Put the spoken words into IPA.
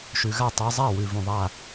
ʃʉ˩ɣa˥˩ tˤe˨˦zˤa˥˩ wʉ˩ vũ˩ðˤa˥˩

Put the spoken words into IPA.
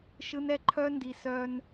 ʃɯ˦nɛ˦ ǃʰœ˦ndi˨ sœ˦n

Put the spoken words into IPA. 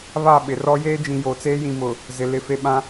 βa˦˨ɓɪ˨rɔ˦ jeː˦d͡ʒĩ˨jo˨t͡seː˦ jĩ˨mʊ˨ | zɪ˨lɪ˦ fe˨ɓã˦

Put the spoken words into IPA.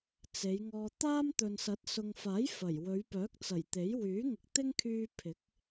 t͡se˨˧jŋɔː˧ t̪aː˥mt̪ɵ˨nsɐ˨˥t̚ sʊ˨ŋfaː˨˥j fɐ˨˩j wɵ˨˧ɥpœː˨˥k̚t͡sɐ˨˩jt̪e˨˥j wyː˨˥ŋɪ˨k̚t̪ɪ˥ŋkʰyː˧ pʰɪ˨˥k̚

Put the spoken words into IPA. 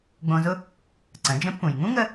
ɡ͡bõ˧zʊ˥ | ǀə̃˩˧d͡ʒə̃˧˥pːũ˩j ŋũ˥ŋə˧

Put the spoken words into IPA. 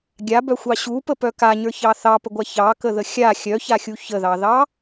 ɡʲabœxʷɑ ɕupəpœ kaɲə˞çɑ θɑpəɡʷa çɑkəðə xʲa xʲœçaxʲu çəðɑðɑ

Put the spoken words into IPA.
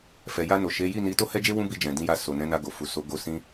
fɛ˨ ja˧no˨ʃe˨˦ ji˦˨ni˨˦ to˦hɛ˦d͡ʒe˦ wũ˦bi˧d͡ʒɛ̃˨ dĩ˧ja˧ so˨nɛ̃˨˦na˧ ɡo˨fu˨so˨˦ɡo˧ sĩ˦

